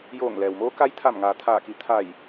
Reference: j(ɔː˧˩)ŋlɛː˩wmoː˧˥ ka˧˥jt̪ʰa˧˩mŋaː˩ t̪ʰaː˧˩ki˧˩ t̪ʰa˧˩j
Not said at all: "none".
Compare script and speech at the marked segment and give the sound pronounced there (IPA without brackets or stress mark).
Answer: oː˧˩